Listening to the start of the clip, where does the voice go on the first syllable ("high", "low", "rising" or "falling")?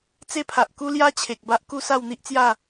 high